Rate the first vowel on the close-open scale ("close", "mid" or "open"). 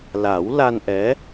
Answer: open